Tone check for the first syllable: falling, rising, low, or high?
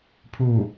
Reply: falling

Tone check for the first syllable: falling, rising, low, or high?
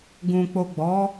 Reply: low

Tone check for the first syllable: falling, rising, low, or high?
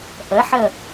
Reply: rising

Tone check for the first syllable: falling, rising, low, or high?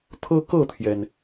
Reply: high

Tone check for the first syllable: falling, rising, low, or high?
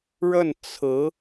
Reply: falling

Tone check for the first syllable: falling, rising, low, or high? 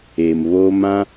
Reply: low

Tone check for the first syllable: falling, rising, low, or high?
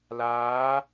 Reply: rising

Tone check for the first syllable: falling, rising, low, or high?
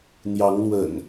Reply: rising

